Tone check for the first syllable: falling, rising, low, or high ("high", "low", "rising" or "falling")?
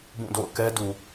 falling